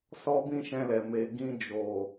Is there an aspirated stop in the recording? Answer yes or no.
no